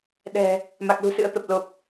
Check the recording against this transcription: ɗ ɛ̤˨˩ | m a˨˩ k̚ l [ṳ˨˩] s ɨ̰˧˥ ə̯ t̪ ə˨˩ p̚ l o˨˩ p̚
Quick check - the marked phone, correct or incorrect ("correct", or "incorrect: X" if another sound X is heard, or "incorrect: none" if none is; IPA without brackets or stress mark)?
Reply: correct